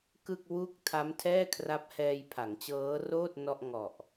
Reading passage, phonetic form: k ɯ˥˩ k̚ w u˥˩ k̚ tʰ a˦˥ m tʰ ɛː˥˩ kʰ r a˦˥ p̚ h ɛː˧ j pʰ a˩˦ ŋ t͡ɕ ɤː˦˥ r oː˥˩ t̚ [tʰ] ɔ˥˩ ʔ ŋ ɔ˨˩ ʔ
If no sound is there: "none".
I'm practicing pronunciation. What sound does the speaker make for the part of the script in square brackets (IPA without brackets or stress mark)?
n